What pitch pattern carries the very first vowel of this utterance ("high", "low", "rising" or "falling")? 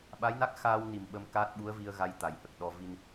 rising